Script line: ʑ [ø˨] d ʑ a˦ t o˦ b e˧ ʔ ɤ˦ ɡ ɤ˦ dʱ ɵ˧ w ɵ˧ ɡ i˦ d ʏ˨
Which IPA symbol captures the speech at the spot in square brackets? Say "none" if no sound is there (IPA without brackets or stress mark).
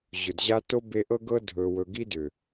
ɵ˨